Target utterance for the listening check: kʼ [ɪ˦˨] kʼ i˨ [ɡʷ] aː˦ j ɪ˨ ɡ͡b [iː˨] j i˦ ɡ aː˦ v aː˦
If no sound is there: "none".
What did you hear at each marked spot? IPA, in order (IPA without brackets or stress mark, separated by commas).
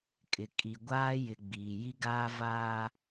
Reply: ɪ˨, ɡʷ, iː˨